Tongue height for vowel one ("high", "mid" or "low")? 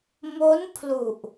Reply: mid